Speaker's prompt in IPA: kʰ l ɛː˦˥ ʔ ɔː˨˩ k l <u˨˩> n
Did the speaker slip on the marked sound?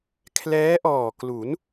yes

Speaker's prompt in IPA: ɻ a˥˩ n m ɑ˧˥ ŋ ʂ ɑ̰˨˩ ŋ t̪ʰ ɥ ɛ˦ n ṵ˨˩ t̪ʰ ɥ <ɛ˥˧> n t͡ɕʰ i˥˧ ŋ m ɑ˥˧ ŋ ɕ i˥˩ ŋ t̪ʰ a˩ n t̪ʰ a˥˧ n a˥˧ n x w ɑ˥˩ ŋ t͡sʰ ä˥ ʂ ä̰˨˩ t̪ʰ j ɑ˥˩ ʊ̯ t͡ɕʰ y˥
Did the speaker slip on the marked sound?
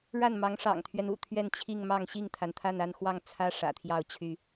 no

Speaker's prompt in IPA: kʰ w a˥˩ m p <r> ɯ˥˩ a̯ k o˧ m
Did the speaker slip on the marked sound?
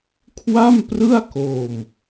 no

